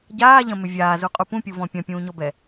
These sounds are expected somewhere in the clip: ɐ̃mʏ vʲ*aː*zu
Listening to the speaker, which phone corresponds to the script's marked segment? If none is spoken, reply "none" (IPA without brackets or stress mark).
aː